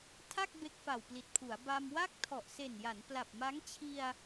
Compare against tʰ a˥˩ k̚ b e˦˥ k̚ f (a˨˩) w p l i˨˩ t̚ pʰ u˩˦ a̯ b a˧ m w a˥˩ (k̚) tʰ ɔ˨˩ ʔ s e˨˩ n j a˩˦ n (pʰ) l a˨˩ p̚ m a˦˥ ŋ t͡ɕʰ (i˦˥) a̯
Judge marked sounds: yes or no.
yes, yes, no, no

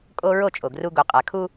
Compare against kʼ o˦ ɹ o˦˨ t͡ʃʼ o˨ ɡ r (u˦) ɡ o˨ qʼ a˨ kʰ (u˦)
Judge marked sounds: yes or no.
yes, yes

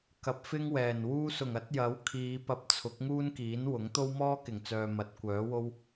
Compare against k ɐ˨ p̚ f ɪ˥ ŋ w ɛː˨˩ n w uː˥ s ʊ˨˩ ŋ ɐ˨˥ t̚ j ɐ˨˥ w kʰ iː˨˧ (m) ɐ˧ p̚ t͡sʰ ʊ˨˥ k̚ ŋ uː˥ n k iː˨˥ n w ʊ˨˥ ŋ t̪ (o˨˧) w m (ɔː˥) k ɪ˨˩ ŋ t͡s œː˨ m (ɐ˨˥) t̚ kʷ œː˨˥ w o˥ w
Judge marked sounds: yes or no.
no, no, yes, yes

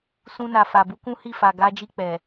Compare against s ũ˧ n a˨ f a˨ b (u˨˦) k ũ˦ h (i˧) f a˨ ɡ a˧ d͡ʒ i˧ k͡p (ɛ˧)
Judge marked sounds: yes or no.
yes, no, no

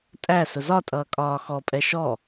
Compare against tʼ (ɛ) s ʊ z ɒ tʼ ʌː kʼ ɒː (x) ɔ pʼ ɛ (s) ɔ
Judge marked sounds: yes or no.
no, yes, no

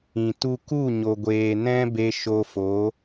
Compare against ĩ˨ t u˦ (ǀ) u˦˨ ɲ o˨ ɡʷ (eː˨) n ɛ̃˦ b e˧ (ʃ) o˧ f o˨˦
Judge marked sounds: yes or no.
no, yes, yes

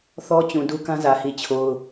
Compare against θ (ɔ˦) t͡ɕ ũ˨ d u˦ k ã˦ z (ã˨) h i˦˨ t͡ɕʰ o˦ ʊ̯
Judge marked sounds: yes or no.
yes, no

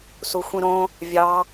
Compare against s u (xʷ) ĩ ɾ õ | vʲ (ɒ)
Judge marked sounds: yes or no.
yes, no

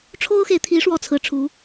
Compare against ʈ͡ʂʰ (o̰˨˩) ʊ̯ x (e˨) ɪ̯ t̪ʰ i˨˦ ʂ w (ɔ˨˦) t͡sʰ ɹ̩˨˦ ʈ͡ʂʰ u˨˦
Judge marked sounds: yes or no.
no, yes, no

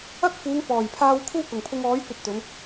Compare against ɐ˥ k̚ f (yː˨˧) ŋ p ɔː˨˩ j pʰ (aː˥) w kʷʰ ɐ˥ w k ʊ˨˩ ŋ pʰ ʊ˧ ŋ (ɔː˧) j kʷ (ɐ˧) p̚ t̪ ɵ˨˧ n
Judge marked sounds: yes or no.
no, no, no, yes

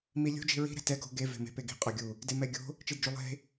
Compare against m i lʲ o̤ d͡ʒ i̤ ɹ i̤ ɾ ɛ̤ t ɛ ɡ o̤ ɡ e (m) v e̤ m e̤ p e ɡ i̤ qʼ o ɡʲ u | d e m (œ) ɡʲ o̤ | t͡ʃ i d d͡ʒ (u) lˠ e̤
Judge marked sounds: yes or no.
no, no, yes

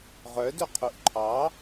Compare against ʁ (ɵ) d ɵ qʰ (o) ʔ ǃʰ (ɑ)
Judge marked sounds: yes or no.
no, no, yes

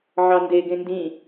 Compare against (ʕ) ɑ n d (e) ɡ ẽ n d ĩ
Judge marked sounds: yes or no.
yes, yes

